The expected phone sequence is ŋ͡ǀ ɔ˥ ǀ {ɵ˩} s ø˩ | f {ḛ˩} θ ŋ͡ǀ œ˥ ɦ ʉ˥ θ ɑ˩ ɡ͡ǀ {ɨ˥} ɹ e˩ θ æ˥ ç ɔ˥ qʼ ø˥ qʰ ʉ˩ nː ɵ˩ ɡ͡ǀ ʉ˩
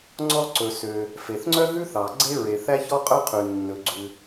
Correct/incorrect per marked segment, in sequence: correct, incorrect, incorrect

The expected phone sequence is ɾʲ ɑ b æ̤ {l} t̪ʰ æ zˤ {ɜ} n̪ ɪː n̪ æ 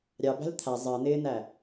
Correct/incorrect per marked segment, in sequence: correct, correct

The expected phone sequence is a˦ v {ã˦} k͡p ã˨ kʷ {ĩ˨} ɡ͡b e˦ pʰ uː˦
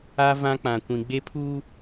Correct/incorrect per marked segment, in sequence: correct, correct

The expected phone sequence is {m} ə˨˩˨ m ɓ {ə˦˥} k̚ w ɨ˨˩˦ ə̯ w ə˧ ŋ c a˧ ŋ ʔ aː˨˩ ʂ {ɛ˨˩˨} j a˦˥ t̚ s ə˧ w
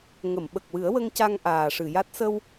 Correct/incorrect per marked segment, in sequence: incorrect, incorrect, incorrect

